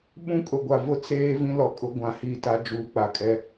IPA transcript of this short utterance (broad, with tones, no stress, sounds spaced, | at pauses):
ɓ ũ˦ kʼ ʊ˨ ɡʷ a˨ v ʊ˦ t͡s eː˦ v ĩ˦ l ɔ˨ kʼ ʊ˦ ɡʷ ã˨ h iː˦ t a˦ d͡ʒ uː˨ k͡p a˨ kʼ ɛ˦